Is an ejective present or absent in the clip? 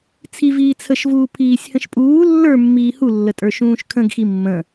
present